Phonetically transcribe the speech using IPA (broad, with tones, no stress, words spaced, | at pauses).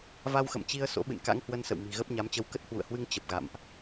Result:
va˧wxə̰˧˨mt͡ɕi˧ə̯ so̰˧˥ɓɨ̰˧˨n ka̰˧˥ŋhwə˧nsə̰˧˨w mi̤˨˩ɣə˦˥p̚ɲa˨˦mt͡ɕə˧w kə˦˥t̚hwṵ˧˨ə̯hwɨ˧ŋ t͡ɕə˨˩p̚ɣa̰˧˨mʔ